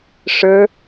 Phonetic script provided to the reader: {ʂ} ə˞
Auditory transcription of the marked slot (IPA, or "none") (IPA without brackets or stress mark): ʂ